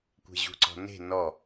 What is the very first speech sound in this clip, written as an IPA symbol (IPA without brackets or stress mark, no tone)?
kʷ